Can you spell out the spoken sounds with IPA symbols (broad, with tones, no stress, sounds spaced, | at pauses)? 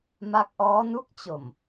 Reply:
m a˦˥ k̚ ʔ ɔː˦˥ n u˦˥ k̚ t͡ɕ o˨˩ m